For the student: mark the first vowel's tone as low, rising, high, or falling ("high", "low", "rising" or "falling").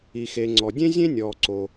low